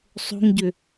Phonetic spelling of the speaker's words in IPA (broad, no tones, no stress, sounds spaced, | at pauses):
sˤ o̤ ŋ ɟ ʏ